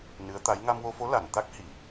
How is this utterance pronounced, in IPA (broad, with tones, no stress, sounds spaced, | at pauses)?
n ɨ˧˥ ə̯ t̪ a˧˥ j ŋ a˧ m w o˧ f o˧˥ l a˨˩˨ n t̪ a˦˥ k̚ h i˨˩˨